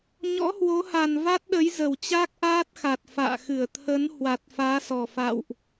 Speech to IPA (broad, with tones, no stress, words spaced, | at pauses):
ɲɔ̰˧˥hwo˨˦ha˨˩n va˦˥t̚ɗə˨˦jzə˨˩wt͡ɕa˦˥k̚ ʔaː˦˥t̚xa˨˩t̚ fa̰ː˧˨xɨ˧˩ə̯ t̪ʰə˨˦n hwa˨˩t̚faː˨˦sɔ˨˩ fa̰˧˨wʔ